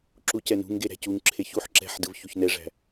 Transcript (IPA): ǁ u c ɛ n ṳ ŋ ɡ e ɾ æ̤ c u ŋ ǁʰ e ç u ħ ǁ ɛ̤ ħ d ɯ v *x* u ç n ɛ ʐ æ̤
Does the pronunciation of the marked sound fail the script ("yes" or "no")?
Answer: yes